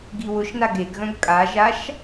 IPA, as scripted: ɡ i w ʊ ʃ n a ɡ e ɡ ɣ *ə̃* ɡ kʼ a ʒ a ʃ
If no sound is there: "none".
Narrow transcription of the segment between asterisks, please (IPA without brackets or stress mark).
œ̃